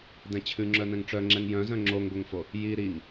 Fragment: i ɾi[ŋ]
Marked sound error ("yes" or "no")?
no